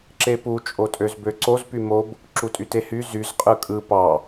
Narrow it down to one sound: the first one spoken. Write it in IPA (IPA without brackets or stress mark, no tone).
ǁ